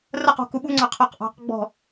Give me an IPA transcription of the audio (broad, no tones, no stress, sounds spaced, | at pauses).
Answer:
r ə q ṳ k u ɓ u ŋ͡ǀ ɑ qʰ ɔ q ʔ ɑ̤ q ɡ͡b ɔ̤